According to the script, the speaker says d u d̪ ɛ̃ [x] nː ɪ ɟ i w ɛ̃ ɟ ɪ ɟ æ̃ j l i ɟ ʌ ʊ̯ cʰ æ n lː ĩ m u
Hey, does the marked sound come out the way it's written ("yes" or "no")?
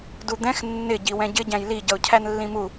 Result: yes